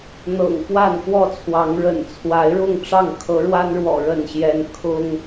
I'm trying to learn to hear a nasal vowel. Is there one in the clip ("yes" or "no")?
no